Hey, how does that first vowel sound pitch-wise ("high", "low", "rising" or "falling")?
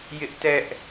high